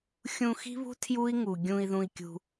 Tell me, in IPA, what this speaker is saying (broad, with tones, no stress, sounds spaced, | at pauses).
xʲ ũ˨ x i̤˦ β ṳ˦ tʰ j u˦ i̯ ŋ u˩ ɡʲ ũ˨ i̯ ð ũ˨ i̯ kʲ ṳ˨